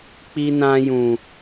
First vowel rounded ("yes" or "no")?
no